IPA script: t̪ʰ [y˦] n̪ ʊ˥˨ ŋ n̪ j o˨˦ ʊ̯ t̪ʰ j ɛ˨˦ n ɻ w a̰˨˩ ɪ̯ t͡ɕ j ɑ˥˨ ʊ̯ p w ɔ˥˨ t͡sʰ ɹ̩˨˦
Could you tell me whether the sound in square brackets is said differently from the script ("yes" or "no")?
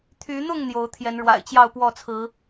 yes